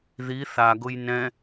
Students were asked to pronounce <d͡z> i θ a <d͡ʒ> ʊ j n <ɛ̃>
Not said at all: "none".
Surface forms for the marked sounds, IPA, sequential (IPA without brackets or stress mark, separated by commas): ð, ɡ, ɛ̃